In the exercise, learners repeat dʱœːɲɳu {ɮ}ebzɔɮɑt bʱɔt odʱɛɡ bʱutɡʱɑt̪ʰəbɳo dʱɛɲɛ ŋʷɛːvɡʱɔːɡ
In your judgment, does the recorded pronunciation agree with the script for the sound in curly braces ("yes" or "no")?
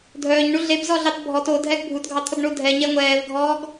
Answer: yes